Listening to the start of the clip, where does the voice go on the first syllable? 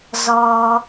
low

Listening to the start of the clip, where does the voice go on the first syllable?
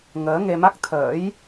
rising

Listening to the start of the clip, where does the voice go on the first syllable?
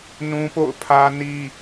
high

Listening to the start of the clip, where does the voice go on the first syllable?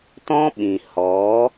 high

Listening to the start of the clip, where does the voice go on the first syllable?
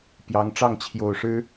rising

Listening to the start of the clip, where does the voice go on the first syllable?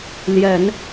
low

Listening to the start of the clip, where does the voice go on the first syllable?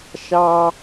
high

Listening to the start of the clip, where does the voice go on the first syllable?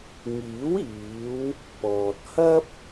rising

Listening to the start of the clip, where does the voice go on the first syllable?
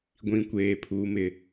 low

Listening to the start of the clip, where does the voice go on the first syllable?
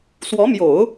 rising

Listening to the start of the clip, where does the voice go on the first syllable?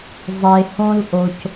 low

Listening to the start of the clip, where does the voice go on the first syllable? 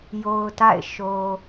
low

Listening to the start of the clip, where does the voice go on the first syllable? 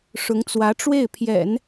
rising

